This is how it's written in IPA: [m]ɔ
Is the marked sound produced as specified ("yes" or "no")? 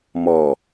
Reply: yes